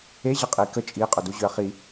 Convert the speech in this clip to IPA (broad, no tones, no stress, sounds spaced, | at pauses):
e ʑ ə qʼ i k ə t͡ʃʼ i qʼ ʊ d u ʑ ʏ ɐ̯ χ i